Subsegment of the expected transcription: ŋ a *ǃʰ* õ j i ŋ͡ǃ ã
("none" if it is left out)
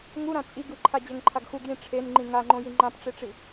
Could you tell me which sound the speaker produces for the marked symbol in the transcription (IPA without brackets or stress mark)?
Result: ŋ͡ǃ